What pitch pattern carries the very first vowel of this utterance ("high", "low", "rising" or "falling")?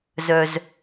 high